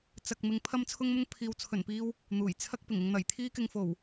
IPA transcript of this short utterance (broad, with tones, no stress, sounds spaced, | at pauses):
t͡s ɐ˧ k̚ m ɪ˧ ŋ pʰ ɐ˥ m t͡sʰ ʊ˥ ŋ m ʊ˥ ŋ pʰ iː˨˧ w t͡sʰ ɵ˨˩ n p iː˧ w | n̪ uː˨˩ j t͡sʰ ɐ˥ k̚ p ɪ˨˩ ŋ ɪ˧ ŋ n̪ ɐ˨˩ j t̪ʰ iː˥ k ɪ˧ ŋ f o˨˩ w